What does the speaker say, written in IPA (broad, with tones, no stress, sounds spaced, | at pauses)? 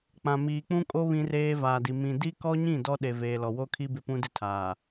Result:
k͡p ã˨ m iː˨ k͡p ũ˦ kʼ o˦ β ĩ˦ r eː˦ v aː˨ d i˨ m ĩ˨ d i˦ k ɔ˦ ɲ ĩ˦˨ d ɔ˦ ɗ e˨ v eː˨ l ɔ˨ w o˦ kʰ i˦ b ɪ˦ p ũ˦ d ɪ˦ tʰ aː˨